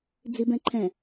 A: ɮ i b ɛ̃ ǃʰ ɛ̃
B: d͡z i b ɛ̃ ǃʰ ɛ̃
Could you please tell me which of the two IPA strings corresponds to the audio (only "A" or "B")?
B